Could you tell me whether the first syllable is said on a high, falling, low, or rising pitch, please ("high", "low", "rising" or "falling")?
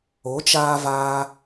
rising